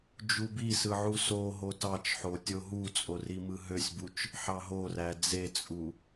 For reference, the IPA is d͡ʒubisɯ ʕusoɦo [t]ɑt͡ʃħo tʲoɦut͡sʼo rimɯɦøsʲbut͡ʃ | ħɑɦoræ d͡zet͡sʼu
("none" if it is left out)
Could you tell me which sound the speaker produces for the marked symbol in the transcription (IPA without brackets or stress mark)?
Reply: t